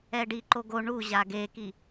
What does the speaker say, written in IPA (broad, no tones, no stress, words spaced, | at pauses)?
ɛɖiǃo ɡo ɳu ʑaɡeki